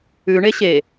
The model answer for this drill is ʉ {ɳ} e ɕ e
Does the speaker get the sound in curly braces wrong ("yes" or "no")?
no